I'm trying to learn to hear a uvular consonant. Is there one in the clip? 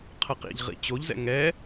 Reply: yes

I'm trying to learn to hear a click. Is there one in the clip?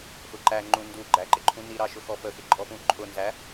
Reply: yes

